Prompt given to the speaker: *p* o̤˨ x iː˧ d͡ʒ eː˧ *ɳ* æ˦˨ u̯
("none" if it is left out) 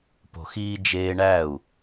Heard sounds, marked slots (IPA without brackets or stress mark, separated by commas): p, ɳ